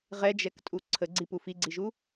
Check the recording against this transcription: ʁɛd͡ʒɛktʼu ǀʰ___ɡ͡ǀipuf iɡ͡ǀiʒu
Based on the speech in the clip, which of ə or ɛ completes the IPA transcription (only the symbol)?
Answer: ə